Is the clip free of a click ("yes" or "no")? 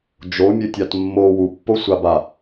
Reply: yes